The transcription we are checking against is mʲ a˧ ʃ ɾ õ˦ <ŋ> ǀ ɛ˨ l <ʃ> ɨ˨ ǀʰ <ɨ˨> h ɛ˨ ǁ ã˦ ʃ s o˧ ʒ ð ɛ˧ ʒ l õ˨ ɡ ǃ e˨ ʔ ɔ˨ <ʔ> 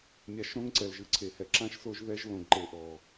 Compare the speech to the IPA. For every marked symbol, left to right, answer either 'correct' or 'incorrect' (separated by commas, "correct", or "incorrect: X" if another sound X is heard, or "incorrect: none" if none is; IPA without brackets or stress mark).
correct, incorrect: ʒ, incorrect: e˨, incorrect: none